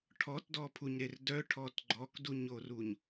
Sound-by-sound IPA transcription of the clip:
ʈʰɔtdɔpʰuɲɾer dœʈʰɔt ɡ͡ǃɔkduɲoruɲ

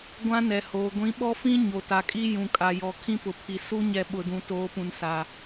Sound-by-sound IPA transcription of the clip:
ɡʷã˦nɛ˨hoː˨ ɡʷĩ˨˦ɓɔ˦fĩ˦ ɲo˨ta˨kʼi˦ jũ˨ kʼa˨jɔ˨ kʰĩ˦pʊ˨pʰi˨ su˦ɲɛ˨ ɓʊ˨dũ˨ toː˨˦pũ˨n sa˨

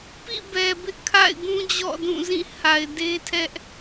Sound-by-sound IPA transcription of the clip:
pḭ˦˨bɛ˨bɪ˦ʔ kʰa̰˦˨ɪ̯ɡũ˦d͡ʑɔ̰˦˨ dũ˦˨zĩ˦˨ ha˨ɪ̯de˦tʰɛ˦ʔ

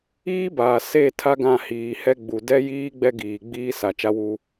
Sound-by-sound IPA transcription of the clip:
iː˦baː˨ se˦˨ tʰa˦ɡã˦˨hiː˨hɛ˦ ɡ͡bu˨ dɛ˦jiː˦ ɡ͡bɛ˦ ɡiː˨ ɡ͡biː˦ sa˨ t͡ʃa˦wuː˦

